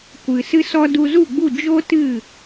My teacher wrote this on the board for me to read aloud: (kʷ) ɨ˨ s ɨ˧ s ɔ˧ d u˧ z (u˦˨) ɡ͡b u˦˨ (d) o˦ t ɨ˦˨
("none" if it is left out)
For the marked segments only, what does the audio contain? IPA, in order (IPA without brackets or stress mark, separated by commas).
kʷ, u˦˨, d͡ʒ